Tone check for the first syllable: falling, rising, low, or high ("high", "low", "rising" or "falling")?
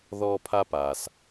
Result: high